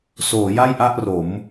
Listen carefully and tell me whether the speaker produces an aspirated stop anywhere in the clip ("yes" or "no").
no